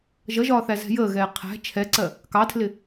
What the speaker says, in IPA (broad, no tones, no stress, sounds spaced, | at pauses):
ʒ ʌ ʒ ɒː θ æ z ɛ̤ j əː ɣ ɛː qʰ æ̤ t͡ʃʰ ɛ ǀ ɜ | k ɑ tʰ l ɪ